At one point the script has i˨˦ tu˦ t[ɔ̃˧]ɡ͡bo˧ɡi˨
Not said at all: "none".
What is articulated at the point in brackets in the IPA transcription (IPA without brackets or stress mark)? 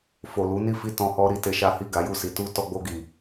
ɔ˧